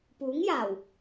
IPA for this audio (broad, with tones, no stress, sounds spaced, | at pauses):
p uː˨˥ ŋ j aː˨˩ w